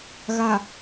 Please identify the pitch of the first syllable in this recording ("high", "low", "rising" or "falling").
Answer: low